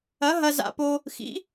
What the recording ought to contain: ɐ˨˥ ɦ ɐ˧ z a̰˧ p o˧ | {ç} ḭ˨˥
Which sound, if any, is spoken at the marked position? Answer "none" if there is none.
x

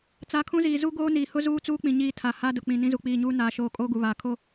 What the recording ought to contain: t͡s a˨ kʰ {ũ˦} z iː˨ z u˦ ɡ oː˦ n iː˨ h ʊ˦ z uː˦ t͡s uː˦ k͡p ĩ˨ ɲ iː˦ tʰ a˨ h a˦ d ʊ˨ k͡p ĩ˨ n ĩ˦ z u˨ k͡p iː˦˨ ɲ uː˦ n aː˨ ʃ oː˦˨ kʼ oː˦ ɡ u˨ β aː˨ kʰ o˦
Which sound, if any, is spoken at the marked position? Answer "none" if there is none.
ũ˦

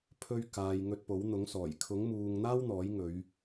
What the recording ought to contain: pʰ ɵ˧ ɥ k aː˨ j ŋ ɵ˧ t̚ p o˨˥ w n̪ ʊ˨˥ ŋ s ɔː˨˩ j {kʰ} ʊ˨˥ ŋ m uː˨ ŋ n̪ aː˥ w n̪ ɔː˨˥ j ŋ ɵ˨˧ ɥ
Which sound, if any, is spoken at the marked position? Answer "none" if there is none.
kʰ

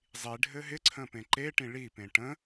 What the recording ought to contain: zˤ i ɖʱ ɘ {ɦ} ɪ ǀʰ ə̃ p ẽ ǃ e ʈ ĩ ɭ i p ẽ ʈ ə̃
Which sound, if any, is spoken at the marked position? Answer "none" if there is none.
ɦ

